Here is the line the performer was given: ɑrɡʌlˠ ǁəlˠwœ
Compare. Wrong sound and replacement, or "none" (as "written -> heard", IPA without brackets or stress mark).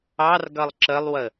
œ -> ə